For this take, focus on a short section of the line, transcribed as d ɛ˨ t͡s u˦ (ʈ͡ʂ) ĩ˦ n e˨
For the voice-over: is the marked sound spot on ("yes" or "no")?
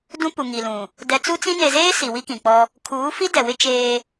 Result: no